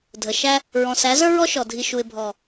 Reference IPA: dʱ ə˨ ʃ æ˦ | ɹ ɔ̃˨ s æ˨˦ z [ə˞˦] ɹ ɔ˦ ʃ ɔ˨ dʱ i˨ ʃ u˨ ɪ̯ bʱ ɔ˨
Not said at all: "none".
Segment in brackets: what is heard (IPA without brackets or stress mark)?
ə˞˦